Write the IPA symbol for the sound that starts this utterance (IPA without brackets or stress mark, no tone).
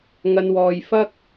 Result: ŋ